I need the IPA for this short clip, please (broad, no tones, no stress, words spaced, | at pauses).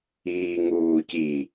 iːŋuːci